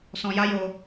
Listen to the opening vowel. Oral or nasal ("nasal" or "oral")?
nasal